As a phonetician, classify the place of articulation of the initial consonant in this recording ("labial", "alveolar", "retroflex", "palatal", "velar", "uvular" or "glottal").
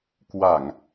velar